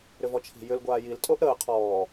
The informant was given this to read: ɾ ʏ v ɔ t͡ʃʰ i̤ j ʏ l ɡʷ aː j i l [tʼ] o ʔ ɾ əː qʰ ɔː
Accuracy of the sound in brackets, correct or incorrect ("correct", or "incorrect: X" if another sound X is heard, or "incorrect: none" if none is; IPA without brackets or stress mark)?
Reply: correct